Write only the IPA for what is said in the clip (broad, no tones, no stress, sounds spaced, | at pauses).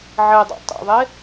ʕ e dˤ o̰ tˤ ḛ ðˤ e